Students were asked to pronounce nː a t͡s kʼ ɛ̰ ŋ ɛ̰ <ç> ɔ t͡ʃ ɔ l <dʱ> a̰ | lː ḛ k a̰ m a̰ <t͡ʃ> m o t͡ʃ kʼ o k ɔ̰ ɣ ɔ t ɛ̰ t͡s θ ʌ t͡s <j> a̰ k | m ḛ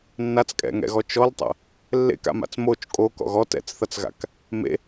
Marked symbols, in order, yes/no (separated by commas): no, no, no, no